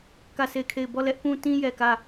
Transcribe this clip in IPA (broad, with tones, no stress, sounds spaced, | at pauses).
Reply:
k ä˦˨ s e˦˨ ɪ̯ kʰ e˦˨ ɪ̯ b ɔ˦˨ l ɛ˦ ʔ p ũ˦ t ĩ˦ j ɛ˨ k ä˦˨